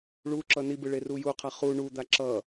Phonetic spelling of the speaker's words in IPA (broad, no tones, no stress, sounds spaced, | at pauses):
ɭ u ǁ ʌ n i b ɯ ɭ e r u j u qʰ a χ u ɳ u d̪ a ǁ ʌ